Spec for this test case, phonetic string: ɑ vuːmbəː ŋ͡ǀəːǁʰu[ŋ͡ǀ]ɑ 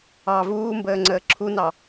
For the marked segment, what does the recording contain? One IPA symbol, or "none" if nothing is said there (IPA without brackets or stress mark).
n